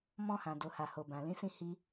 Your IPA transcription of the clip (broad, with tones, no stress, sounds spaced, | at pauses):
m ɔ̃˧ h ã˨ d o˨ h a˨ h o˨ b ã˨ l ĩ˨˦ s ĩ˦˨ h i˧